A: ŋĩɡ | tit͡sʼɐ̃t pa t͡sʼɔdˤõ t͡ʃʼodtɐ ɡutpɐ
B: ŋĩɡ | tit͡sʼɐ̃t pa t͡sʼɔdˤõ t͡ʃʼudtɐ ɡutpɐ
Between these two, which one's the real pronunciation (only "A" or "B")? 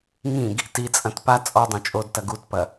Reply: A